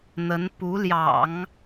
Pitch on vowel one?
rising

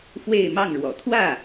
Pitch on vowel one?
falling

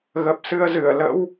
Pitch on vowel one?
low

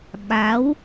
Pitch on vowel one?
rising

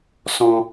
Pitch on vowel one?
high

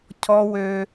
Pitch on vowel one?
low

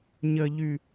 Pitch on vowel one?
low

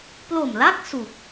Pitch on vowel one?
low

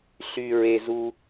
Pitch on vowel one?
high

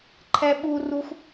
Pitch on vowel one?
high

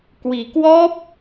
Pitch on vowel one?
low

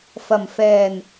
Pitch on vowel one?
low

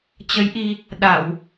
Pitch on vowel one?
rising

